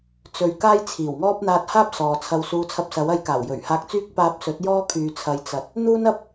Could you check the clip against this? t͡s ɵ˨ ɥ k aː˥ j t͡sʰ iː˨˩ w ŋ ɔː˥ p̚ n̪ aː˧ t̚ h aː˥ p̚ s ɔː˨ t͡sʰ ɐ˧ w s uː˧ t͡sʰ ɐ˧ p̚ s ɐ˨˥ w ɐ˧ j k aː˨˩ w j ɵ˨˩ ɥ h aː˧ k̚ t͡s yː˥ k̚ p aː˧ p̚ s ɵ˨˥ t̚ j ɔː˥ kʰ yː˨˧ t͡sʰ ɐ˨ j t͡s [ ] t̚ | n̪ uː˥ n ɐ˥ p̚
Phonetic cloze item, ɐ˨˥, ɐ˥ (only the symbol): ɐ˨˥